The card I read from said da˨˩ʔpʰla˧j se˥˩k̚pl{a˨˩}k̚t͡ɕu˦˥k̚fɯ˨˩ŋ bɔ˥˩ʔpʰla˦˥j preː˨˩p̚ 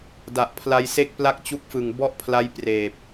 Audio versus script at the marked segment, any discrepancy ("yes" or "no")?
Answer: yes